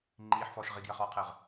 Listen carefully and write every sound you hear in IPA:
ŋ͡ǃiːħfɔːʃ ʁiɡjəχɔːqʰəːʁ

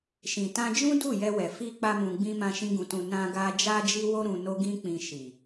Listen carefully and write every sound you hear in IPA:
ʃĩ˨tã˧d͡ʒũ˦ du˦˨jɛ˧wɛ˨ fi˧ k͡pa˦mũ˧ɡ͡bĩ˦ mã˧ʃĩ˧ɡũ˨tũ˨ nã˧ɡa˧ d͡ʒa˦d͡ʒi˦wo˦ ɾũ˧no˦ ɡĩ˦k͡pĩ˧ʃi˨

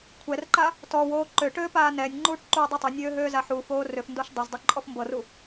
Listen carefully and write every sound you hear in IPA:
kʷʰɛrǃa | tɔwoː ǃøʈøːpaː nɛːnʲŋ͡ǃuːʈǃuːdˤu tˤonʲøːɦøːza ħuːfoː røfndoʃ dˤɛzdˤuǃʼɔf mbɤru

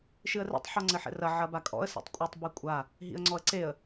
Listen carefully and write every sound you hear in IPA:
ʃɨə̯rɛ̰tˤ ħɔŋ͡ǀɘħɛ̰rɐ ʕɐbakʼɔ̰ə̯ sḛtˤkʷʼɨtˤ bekʷʼa | ɦḭə̯ŋ͡ǀɔə̯ǀeə̯

